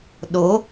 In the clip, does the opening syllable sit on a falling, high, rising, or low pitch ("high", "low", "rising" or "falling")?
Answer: rising